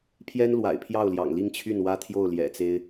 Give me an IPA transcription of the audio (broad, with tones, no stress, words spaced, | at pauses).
pʰjɛ˥nlwa̰˨˩ɪ̯pʰjɑ˥˩ʊ̯ljɑ̰˨˩ŋ li˥˧ŋt͡ɕʰy˥˩nwä˥ t̪ʰjo˥˩ʊ̯ljɛ̰˨˩t͡se˥ɪ̯